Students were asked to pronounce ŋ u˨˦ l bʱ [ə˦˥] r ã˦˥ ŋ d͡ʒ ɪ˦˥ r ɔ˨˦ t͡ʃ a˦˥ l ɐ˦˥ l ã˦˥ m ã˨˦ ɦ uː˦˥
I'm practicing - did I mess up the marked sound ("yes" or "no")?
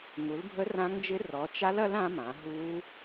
no